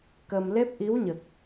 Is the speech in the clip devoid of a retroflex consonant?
yes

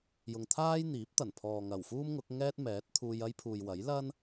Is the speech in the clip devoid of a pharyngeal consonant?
yes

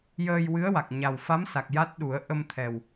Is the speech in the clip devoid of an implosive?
no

